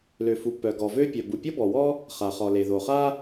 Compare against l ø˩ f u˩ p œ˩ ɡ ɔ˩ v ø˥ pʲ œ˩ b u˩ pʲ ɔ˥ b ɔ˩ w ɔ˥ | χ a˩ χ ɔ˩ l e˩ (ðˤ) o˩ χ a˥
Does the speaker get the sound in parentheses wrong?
yes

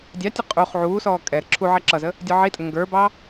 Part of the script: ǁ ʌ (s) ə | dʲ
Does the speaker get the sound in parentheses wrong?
yes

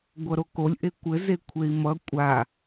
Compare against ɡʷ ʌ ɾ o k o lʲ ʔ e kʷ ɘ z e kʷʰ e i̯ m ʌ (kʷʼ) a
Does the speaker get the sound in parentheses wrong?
no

